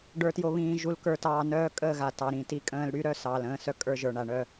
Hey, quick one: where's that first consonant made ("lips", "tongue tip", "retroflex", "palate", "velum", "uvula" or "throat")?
retroflex